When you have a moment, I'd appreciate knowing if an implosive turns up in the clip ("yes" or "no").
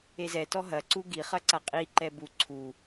no